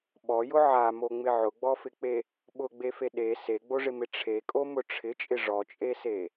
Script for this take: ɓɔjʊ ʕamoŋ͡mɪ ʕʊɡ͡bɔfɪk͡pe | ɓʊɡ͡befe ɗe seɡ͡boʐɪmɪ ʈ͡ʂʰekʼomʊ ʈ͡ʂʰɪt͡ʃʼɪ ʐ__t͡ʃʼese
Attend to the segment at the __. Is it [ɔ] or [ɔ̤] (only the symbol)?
ɔ